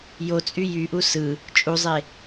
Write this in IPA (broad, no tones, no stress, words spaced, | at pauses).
jot͡sʼy jyʔu sɯ | t͡ʃʼuzˤe